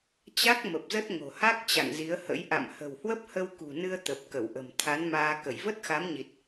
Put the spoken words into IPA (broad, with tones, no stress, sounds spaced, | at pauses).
t͡ɕ a˦˥ k̚ m ə˨˩ p̚ z ə˦˥ t̚ ŋ o̤˨˩ h a˦˥ k̚ t͡ɕ a̰˧˨ ŋ z i˨˦ ə̯ h ə̰˧˥ j ʔ a̰˧˨ m h ə̤˨˩ w h w ə˦˥ p̚ h ə˧ w k ṳ˨˩ n ɨ˧ ə̯ t̪ ə˨˩ p̚ k ə˧˩ w ʔ ə̤˨˩ m t̪ʰ a˨˦ n m aː˧ k ə˧˩ j v ə˦˥ t̚ x a˨˦ m ɲ i˨˩ t̚